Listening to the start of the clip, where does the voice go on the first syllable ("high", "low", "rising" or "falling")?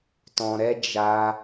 low